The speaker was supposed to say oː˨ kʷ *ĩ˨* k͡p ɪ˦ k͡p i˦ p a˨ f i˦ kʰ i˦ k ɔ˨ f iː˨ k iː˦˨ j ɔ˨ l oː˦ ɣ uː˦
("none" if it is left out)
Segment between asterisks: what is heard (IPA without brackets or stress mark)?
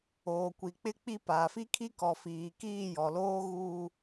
i˨